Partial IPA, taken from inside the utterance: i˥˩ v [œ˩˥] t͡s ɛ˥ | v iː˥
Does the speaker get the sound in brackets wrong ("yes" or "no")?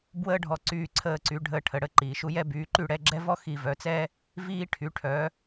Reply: no